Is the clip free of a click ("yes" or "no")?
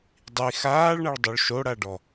yes